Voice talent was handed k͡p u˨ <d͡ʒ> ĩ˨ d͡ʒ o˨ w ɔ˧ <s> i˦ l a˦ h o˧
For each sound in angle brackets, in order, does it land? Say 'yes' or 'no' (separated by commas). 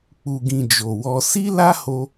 no, yes